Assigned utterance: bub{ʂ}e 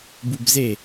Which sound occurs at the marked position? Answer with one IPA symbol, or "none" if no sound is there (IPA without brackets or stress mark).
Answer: z